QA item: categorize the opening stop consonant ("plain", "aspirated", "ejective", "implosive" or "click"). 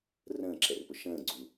click